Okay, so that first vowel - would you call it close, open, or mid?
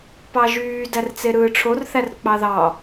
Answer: open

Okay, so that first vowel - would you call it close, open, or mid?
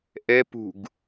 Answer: mid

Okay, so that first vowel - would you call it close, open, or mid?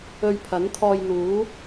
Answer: mid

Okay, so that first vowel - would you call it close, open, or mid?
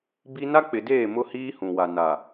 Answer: close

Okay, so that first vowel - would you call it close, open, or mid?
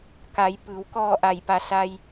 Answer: open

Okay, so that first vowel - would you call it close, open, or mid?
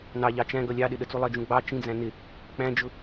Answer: open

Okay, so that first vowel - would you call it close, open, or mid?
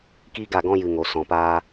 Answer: close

